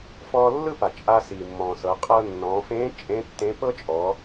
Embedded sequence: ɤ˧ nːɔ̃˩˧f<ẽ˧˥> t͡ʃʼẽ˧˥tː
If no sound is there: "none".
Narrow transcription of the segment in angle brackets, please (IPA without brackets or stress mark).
ẽ˧˥